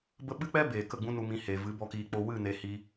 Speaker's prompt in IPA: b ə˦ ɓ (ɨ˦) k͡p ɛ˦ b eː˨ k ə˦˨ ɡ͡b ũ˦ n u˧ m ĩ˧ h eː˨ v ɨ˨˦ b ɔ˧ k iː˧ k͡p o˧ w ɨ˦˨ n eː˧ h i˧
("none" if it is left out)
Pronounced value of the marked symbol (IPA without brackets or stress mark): ɨ˦